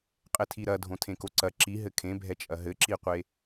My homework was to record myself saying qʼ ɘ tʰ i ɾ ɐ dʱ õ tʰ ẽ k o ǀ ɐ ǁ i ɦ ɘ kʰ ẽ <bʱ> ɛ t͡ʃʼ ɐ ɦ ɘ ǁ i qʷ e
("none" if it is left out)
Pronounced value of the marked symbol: bʱ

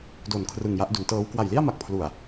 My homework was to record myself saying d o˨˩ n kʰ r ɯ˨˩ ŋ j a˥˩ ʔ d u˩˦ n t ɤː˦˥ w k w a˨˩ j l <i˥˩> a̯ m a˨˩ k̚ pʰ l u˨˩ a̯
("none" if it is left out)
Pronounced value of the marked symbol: i˥˩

